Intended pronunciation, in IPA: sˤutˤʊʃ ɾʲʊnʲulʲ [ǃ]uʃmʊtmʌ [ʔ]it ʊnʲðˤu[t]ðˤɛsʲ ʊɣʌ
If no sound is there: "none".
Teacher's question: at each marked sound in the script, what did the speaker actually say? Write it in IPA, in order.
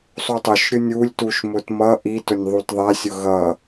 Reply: t, ʔ, t

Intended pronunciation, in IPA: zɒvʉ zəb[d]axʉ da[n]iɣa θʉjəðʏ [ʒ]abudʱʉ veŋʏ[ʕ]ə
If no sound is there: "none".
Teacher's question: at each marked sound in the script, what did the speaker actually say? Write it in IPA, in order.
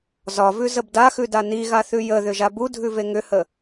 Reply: d, n, ʒ, h

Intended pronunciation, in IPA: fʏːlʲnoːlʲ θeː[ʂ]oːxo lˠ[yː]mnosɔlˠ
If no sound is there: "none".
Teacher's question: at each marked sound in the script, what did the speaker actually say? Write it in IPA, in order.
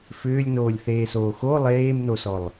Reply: s, eː

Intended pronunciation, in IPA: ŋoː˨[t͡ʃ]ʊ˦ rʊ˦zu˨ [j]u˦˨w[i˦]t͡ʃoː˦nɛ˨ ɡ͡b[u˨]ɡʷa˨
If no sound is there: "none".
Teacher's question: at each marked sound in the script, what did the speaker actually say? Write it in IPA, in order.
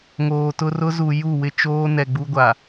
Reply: t, j, ɪ˦, u˦

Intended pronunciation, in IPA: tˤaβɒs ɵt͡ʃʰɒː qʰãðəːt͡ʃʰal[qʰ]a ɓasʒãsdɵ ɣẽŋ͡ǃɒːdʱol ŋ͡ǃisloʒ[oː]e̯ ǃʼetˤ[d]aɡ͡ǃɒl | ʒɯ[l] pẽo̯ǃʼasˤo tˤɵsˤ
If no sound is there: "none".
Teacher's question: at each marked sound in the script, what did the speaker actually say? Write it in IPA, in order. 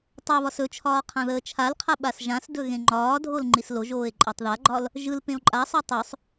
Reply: qʰ, oː, ð, l

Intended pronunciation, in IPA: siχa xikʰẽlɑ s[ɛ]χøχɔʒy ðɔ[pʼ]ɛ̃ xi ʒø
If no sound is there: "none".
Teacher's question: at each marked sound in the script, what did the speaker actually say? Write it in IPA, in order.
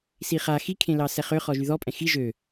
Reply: ɛ, pʼ

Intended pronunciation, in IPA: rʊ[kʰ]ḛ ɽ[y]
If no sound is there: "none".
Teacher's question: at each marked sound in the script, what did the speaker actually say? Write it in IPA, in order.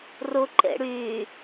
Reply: ǃ, y

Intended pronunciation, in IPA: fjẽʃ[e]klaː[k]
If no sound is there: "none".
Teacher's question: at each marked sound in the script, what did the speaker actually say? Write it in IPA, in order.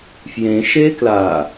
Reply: e, none

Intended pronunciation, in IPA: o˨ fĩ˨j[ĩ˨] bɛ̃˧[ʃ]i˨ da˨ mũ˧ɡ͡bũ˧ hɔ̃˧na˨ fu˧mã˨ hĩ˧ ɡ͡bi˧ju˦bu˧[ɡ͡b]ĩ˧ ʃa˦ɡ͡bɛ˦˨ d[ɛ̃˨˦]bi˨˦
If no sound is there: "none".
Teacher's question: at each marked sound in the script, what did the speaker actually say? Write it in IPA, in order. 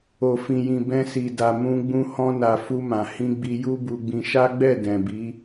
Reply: ĩ˨, s, ɡ͡b, ɛ̃˨

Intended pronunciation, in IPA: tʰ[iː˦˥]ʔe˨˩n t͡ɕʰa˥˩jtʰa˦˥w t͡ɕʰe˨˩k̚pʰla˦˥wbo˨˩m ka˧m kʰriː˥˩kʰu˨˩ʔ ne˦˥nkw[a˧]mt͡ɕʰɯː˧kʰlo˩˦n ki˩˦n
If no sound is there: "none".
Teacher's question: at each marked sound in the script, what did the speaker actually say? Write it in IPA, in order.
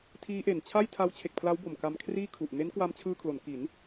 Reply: iː˦˥, a˧

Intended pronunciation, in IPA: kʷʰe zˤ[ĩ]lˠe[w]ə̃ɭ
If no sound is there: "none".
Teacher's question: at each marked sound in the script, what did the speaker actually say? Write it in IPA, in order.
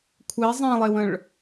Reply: ẽ, w

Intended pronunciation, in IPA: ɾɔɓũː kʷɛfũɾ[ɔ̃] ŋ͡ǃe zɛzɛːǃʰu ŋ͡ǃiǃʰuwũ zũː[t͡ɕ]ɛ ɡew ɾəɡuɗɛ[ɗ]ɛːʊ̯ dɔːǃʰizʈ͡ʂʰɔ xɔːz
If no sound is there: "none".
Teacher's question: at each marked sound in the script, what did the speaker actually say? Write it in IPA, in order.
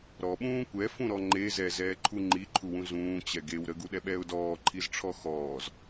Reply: ɔ, t͡ɕ, ɓ

